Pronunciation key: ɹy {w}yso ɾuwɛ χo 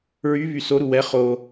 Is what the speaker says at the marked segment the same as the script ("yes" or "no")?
no